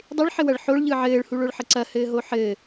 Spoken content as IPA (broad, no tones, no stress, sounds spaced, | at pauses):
dˤ ɪ ɭ ħ ɘ w ɐ ɭ ħ o ɭ ʎ ɯ ʕ ɘː ɭ h u ɭ o ɭ ħ ə ǀ ɐ h ɘː ɦ o ħ ɘ